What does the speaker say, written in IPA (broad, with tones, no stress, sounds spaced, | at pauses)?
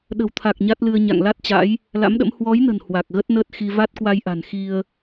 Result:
ɗ ə̤˨˩ w t̪ʰ a˨˩ k̚ ɲ a˦˥ t̚ l ɨ˧ ə̯ ɲ a̰˧˨ ŋ l a˦˥ t̚ t͡ɕ a̰˧˥ j | l a̰˧˥ m ɗ ə̰˧˥ m h w ɔ˨˦ j n ə̤˨˩ n h w a˨˩ k̚ ɣ ə˦˥ t̚ n əː˦˥ t̚ x i˧ v a˦˥ t̚ k w a˧ j ʔ a̤˨˩ n x i˧ ə̯